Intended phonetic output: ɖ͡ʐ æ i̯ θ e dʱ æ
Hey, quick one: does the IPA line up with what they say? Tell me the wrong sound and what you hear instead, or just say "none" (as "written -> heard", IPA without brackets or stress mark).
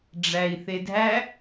none